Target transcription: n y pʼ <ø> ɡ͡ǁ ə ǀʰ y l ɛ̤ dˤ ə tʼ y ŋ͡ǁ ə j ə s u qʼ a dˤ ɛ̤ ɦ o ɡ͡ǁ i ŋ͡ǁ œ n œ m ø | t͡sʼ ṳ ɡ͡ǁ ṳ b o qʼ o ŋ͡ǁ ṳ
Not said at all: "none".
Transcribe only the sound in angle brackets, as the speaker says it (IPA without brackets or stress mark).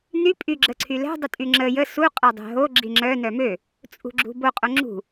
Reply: y